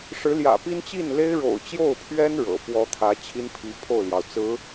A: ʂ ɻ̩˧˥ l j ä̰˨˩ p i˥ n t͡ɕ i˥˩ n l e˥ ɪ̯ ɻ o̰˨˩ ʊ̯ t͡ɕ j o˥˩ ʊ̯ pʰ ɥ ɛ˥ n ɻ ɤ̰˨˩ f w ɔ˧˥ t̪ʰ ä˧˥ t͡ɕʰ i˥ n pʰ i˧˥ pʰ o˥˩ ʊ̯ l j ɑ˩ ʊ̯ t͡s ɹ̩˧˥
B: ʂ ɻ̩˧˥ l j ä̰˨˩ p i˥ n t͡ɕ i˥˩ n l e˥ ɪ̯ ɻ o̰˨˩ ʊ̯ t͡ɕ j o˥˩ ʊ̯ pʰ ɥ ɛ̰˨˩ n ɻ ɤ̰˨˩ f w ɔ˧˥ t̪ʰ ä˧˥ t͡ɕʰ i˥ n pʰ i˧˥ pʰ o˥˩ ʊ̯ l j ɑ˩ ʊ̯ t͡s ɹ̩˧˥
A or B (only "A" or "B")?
A